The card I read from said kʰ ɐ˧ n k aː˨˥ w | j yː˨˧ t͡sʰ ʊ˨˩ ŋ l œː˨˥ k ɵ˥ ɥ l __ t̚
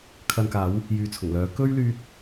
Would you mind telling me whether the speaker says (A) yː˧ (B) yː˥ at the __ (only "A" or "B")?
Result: A